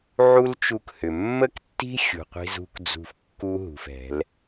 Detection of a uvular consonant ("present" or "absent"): present